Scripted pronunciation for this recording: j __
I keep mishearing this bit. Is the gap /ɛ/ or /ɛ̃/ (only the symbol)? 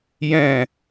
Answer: ɛ̃